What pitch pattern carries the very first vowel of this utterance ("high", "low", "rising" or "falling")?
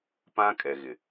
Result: high